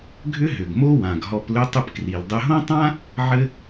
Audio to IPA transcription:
ɡʱ ʏ˥ ɦ ʏ˩ ɡ m o˥ w ã˩ ɡ ɦ ɔ˧ p l ʏ˥ tˤ ʏ˥ p k r i˩ l dˤ ɘ˧ ɦ õ˥ tˤ ã˥ | ʕ ɘ˥

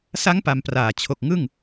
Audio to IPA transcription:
s a˦˥ ŋ p a˧ m p r aː˨˩ t͡ɕʰ o˨˩ k̚ ŋ ɯ˥˩ ŋ

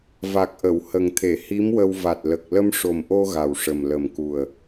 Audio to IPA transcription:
v a˨˩ k̚ ʔ ə˨˩˨ w h ə˨˩ ŋ t̪ʰ e˨˩˨ h i˧˥ m w ə˧ w v a˨˩ t̚ l ə˨˩ k̚ l ə˧ m ʂ o˨˩ m ʔ o˧ ɣ a˨˩ w ʂ ə˨˩ m l ə˨˩ m k u˨˩ ə̯

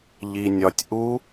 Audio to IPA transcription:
ʎ i˧ nʲ ɒ˧ tʲ ʔ u˦˥

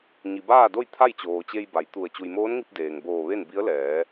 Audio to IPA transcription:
ɲ i˩ b aː˥˨ d o˥˨ j t̪ʰ a˥˨ j t͡ɕ oː˩ t͡ɕ e˧ j b a˩˧ j t̪ u˧˩ ə̯ t͡ɕ u˩ j m oː˧˥ n ŋ i˧ p̚ d eː˩ ŋ b oː˧˩ ʋ e˥˨ n b i˧˥ ə̯ l ɛː˩˧

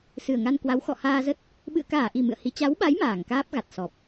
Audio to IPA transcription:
s ɨ˨˩ ə̯ ŋ a˧ n k w a˨˦ w x ɔ̰˧˨ h aː˧ z ə˦˥ t̚ | ɓ ɨ̰˧˨ ə̯ k aː˧˩ ʔ i˨˩ m ɨ̰˧˨ ə̯ h i˨˦ t͡ɕ a˨˦ w ɓ a˨˦ j m aː˧˩ ŋ k aː˦˥ p̚ ɣ a˨˩ t̚ s ɔ˨˩ p̚

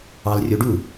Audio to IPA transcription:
ɑ l rʲ o ɖ u

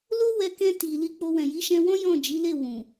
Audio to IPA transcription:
l o˦ w ɛ˧ k ɛ̃˧ t i˨ l i˧ k͡p o˧ w ɛ̃˨ j i˨˦ ʃ ɛ̃˧ w ɔ̃˦ j ɔ̃˦˨ d͡ʒ i˨˦ l e˦˨ w ũ˨

